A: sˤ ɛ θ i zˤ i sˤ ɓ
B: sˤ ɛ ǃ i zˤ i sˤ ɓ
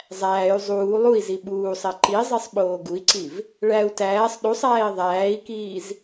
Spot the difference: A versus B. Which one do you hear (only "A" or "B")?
B